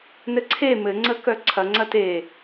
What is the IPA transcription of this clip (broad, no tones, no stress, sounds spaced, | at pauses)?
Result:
n ɘ ǀʰ e m ɘ ŋ͡ǀ ə k œ ǀʰ ɐ ŋ͡ǀ ɐ t e